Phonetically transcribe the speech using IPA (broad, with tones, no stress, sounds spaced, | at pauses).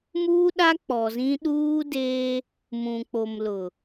m uː˦ ɗ a˦ k͡p ɔ˨ z ĩ˦ ɗ uː˦ d eː˦ | m ũ˨ k͡p o˨ m l ʊ˨